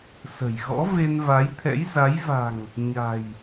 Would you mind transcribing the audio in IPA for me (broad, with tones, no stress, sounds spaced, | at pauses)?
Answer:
s ə̤˨˩ j ɣ ɔ̰˧˥ v e˧ n v a˨˦ j t̪ʰ ɛ̰˧˥ j z a˨˦ j v a̤˨˩ ŋ | ɲ a̤˨˩ j